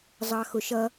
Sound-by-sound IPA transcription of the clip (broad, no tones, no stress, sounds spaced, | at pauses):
zˤ ɑ x ʊ ʃ ʌ